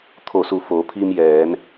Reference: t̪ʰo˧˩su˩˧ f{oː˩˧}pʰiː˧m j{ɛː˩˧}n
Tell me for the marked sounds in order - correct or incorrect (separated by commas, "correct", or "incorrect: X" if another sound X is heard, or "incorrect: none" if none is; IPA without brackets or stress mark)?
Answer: correct, correct